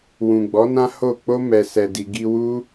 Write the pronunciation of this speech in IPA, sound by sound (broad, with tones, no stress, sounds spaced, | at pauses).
w ũ˨ ɡ͡b ɔ˨˦ n ã˦ h o˦˨ k͡p o˧ m ɛ˨ s ɛ˨ d i˨ ɡ i˧ w u˦